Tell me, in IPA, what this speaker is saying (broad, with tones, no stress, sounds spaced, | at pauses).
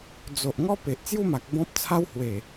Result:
d͡z o˨ ʔ ŋ ɔ˥˧ p e˨ ʔ t͡s j u˥˧ m a˨ k̚ b ɔ̃˦ p̚ t͡sʰ a˦ w h w e˨˩